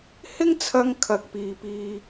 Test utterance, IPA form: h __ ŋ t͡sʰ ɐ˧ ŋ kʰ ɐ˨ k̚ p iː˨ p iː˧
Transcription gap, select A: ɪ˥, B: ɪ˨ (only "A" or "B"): A